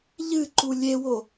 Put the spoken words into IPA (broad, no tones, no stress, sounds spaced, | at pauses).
ʎ ɨ ǃ u lʲ e w o